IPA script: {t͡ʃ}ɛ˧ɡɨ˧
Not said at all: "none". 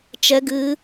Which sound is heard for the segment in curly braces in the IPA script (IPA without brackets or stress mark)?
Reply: t͡ʃ